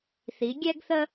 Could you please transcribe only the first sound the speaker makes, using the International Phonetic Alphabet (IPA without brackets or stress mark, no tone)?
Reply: θ